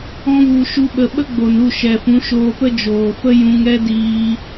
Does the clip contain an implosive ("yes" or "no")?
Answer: yes